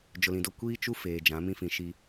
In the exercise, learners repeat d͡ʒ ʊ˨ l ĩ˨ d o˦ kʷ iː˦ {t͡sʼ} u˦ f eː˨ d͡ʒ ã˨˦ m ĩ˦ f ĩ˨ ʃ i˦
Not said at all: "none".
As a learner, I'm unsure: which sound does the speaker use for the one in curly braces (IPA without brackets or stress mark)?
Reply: t͡ʃ